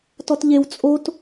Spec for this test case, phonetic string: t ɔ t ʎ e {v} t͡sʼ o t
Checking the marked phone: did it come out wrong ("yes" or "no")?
yes